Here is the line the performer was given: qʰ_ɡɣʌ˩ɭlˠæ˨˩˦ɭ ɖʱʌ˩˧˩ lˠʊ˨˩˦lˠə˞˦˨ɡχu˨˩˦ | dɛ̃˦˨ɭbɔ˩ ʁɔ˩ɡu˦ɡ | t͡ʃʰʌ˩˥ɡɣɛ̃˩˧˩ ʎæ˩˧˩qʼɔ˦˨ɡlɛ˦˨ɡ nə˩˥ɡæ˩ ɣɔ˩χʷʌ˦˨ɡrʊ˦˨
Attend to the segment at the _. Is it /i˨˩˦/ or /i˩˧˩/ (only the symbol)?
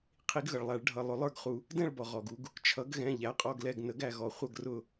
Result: i˨˩˦